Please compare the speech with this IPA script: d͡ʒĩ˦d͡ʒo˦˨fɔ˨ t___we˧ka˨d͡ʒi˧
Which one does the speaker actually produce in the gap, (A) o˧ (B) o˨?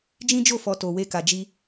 B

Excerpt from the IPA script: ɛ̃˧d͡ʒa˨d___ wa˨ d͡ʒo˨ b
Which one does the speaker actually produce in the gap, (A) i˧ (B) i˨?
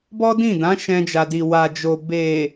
B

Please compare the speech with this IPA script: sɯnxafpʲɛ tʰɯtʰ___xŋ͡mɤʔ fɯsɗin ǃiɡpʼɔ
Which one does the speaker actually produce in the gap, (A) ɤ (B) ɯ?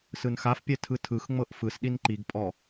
B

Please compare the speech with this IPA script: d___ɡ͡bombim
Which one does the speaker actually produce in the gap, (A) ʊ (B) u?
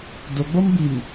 A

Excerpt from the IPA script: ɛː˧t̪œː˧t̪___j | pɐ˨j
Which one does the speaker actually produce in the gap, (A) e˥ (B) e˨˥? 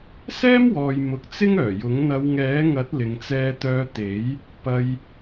B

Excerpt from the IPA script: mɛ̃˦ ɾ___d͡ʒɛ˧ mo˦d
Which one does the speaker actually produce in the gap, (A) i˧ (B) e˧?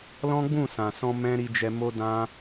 A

